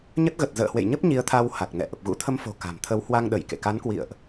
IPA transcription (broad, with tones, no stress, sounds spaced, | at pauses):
ɲ ə˦˥ t̚ ɣ ə˨˩ t̚ z ə̰ː˧˨ h w ḛ˧˨ j ɲ ə˦˥ p̚ ɲ i˨˦ ə̯ t̪ʰ a˧ w h a˨˩ k̚ n ɛ̰˧˨ ʔ ə˨˩ p̚ ɣ ṵ˧˥ t̪ʰ ə˧ m f o̤˨˩ k a̤˨˩ m t̪ʰ ə˨˦ w h w a˧ ŋ ɗ ə˧˩ j k ḛ˧˨ k a˨˦ n k w ḭ˧˨ ə̯ ʔ